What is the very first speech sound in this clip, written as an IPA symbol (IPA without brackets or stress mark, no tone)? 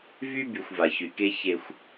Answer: v